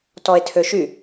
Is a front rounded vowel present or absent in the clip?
present